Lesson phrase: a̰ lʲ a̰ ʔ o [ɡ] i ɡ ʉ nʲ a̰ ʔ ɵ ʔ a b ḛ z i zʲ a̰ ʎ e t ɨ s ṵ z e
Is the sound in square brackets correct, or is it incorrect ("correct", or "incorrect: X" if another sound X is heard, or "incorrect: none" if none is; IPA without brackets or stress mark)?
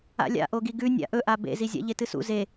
correct